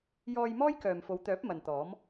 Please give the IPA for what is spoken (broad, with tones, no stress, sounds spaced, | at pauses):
j ɔː˧ j m ɔː˥ j k œː˨ m f o˨˧ w t̪ œː˨˥ p̚ m ɐ˨ n t̪ ɔː˨˥ m